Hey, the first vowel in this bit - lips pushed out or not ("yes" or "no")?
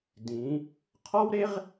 no